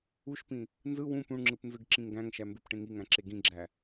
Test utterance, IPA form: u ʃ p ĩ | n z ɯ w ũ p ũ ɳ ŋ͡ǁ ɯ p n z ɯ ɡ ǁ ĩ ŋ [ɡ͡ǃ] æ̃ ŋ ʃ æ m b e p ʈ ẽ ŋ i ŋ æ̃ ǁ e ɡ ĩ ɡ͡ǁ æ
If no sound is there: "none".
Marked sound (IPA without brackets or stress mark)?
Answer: ɡ